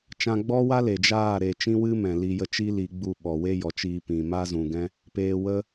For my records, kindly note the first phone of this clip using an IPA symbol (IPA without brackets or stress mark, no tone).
t͡ʃ